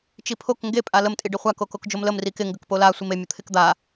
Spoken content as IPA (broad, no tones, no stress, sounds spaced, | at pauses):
t͡ʃ i pʰ o k ŋ ɡ e pʼ a l ə m tʼ i ɖ ɪ χʷ a k o k o k d͡ʒ o m l ə m r i k ɪ ŋ ɡ ə k p o l a sʷ i m e mʲ ə t̪ʰ ɪ k d̪ a